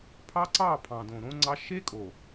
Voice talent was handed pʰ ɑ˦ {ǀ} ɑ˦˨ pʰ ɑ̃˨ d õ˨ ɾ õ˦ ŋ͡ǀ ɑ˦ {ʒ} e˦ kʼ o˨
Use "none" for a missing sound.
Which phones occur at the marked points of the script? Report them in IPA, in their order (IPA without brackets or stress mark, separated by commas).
ǀ, ʃ